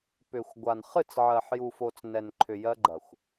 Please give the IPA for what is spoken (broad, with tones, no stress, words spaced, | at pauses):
pʏ˨xʷɡʷa˨n χɨ˦˨t͡sʕɜ˨ħju˨fo˨t͡s nɛ˨n ǃʰʏ˨ jɜ˦ɡ͡ǃɐ˨xʷ